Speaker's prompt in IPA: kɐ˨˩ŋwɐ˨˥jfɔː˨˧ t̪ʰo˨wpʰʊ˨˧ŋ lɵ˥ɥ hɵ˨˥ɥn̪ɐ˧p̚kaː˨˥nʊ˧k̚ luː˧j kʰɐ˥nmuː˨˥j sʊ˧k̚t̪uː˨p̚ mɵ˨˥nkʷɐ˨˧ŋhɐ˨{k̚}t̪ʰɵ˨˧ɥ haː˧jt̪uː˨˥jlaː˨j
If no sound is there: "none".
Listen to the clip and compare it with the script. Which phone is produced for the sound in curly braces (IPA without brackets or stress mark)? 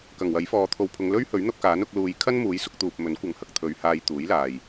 k̚